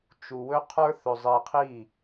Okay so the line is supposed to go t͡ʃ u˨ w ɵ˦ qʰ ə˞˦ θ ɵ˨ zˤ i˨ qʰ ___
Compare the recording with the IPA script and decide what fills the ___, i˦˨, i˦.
i˦˨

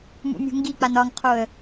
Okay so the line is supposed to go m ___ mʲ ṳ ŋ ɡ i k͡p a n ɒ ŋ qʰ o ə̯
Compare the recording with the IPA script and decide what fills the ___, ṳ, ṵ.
ṵ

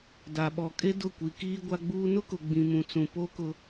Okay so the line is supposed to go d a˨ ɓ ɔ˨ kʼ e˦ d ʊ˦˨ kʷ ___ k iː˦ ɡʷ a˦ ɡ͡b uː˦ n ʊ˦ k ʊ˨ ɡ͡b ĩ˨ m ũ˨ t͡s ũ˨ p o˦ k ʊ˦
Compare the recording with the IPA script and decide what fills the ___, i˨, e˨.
i˨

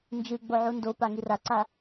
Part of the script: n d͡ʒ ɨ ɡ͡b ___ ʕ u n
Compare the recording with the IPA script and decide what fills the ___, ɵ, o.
o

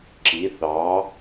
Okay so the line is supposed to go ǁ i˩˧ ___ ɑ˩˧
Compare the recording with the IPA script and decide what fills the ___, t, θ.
θ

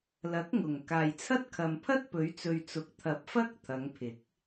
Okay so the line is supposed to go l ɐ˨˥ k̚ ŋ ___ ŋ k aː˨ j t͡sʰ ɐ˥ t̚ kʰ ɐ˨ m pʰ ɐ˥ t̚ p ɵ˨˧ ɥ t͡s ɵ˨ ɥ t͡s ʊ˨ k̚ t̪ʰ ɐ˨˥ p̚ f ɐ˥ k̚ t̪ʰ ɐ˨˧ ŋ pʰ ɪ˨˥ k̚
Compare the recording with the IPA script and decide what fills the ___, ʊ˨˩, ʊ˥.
ʊ˨˩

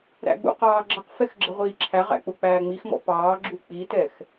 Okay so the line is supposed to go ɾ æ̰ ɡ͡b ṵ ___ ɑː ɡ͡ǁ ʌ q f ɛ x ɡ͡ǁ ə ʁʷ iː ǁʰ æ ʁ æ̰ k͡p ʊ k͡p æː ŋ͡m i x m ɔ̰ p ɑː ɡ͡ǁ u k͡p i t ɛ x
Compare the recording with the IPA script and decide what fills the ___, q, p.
q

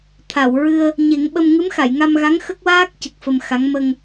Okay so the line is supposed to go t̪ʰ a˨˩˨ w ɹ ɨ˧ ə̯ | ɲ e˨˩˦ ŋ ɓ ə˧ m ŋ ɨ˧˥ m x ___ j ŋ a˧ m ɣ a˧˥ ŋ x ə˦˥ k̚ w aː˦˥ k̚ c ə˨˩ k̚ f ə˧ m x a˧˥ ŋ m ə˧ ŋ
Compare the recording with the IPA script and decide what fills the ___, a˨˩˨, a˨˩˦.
a˨˩˨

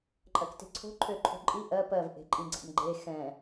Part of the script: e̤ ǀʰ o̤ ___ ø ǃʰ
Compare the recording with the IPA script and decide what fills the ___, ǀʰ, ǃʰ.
ǃʰ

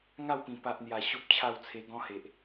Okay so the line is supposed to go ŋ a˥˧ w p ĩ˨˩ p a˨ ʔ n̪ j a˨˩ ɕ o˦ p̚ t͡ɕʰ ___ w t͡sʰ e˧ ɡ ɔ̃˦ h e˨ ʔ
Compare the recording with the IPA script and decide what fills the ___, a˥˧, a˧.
a˥˧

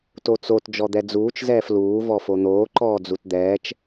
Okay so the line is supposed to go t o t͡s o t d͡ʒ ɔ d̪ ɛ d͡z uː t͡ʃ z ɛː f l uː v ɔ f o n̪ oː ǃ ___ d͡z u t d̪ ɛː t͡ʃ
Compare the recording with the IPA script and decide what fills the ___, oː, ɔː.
ɔː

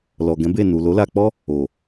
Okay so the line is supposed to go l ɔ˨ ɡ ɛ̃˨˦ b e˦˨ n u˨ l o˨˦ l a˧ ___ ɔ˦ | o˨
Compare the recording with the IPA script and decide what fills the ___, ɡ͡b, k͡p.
k͡p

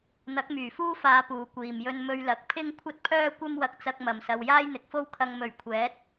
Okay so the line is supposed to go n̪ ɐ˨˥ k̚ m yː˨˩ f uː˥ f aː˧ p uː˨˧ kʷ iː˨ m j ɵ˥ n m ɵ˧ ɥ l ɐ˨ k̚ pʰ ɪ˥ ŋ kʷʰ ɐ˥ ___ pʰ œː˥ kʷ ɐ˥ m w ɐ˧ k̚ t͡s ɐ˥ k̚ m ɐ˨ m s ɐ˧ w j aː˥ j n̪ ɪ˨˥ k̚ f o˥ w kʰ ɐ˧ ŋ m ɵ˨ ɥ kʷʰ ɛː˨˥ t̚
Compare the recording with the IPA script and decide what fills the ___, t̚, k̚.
t̚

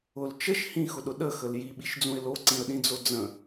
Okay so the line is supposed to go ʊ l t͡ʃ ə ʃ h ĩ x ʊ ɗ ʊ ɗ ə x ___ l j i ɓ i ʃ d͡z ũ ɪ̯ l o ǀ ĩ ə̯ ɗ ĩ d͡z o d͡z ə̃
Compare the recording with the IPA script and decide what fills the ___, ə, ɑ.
ə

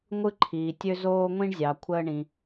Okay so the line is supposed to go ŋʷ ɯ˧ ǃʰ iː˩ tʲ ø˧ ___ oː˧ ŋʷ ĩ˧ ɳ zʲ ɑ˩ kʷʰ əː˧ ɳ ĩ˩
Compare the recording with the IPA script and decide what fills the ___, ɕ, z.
z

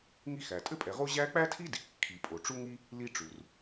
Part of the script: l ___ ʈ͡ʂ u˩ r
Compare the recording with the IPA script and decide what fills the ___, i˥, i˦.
i˥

